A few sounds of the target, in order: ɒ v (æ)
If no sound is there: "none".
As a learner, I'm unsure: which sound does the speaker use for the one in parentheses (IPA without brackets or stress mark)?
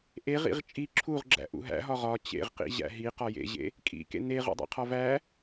æ